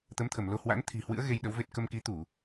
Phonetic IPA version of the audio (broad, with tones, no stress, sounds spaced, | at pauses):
t̪ ə˨˦ m t̪ʰ ə˧˩ m l o˧ h w a̰˧˥ n t̪ʰ i̤˨˩ h w ɨ̰˧˥ ə̯ ɣ e˧ j ɗ ə˨˦ w v e˦˥ t̚ k ə˧ m k i˨˦ t̪ u˧˩˨